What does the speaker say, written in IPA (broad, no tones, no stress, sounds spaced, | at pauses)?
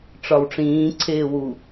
ʈ͡ʂ ɒ w ʈ͡ʂ ĩː ǀʰ eː w u